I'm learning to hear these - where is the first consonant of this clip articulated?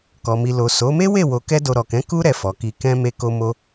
velum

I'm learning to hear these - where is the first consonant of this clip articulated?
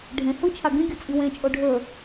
retroflex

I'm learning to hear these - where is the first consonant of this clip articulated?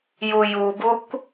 palate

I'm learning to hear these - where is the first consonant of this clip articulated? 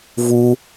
lips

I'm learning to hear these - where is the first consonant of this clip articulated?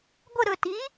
velum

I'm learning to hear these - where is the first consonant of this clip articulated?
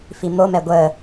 lips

